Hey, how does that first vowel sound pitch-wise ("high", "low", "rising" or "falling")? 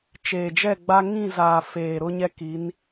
low